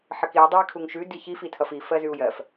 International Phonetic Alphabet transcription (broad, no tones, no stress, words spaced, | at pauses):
ħəkiu̯ dˤʌi̯kʰuŋʃʉ diçif itʰʌfi fɜzʉu̯jɜf